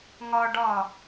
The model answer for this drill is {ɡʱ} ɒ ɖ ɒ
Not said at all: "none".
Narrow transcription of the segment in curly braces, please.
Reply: ŋ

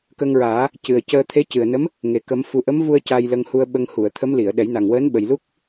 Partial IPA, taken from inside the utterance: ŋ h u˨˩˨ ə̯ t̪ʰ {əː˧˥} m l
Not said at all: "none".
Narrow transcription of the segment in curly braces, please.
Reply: ə˧˥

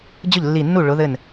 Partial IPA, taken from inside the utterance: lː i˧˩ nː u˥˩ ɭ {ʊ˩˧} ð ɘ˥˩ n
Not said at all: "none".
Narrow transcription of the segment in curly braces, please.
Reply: ʊ˨˥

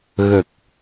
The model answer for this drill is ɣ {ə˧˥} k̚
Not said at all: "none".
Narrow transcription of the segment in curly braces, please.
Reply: ə˨˩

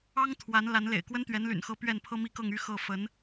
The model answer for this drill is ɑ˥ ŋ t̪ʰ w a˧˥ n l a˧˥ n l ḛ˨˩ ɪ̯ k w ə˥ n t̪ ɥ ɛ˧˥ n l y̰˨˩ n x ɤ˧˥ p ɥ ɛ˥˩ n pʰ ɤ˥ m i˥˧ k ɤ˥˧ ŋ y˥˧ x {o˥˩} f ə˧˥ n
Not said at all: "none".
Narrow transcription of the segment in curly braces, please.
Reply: ɤ˥˩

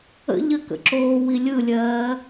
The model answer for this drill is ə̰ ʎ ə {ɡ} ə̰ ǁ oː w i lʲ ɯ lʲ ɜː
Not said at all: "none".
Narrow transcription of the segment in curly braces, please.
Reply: k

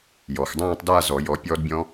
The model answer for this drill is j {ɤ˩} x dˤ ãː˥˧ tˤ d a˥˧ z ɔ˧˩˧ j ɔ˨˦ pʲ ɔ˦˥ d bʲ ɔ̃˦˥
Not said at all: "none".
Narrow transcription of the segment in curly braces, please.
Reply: ɔ˩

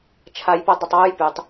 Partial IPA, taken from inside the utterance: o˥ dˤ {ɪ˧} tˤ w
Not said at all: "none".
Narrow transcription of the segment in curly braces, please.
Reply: ɪ˧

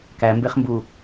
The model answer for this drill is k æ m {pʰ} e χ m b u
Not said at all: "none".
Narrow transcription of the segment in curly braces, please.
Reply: b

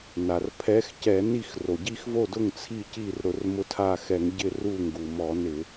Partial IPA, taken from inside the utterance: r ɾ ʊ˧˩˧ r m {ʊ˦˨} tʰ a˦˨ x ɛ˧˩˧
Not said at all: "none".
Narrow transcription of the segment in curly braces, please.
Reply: ʊ˧˥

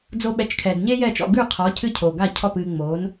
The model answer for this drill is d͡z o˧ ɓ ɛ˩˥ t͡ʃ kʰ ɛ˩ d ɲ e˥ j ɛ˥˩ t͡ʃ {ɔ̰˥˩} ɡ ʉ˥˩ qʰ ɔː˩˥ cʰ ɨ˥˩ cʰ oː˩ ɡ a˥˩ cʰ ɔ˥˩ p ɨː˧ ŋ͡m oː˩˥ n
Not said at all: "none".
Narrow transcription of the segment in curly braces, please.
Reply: ɔ̰˥˩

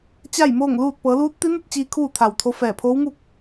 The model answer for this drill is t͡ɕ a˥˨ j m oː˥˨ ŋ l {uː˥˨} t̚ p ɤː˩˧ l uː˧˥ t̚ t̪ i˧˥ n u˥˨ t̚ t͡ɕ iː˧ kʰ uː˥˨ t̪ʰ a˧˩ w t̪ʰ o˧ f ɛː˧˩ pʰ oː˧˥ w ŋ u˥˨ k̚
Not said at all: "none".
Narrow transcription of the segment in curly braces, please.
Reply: uː˥˨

